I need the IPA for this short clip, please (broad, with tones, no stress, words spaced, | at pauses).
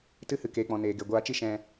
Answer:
tɨ˧hɨ˨ keː˨k͡pɔ̃˨ neː˨ɡe˨ ɡʷaː˧t͡ʃi˦ ʃɛ̃˧